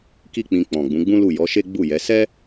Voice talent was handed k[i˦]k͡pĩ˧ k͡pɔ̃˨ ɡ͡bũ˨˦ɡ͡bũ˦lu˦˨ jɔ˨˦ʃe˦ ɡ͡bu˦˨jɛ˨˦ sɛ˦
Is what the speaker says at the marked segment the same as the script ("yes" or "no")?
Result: yes